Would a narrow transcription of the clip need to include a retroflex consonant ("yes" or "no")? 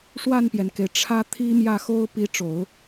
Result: yes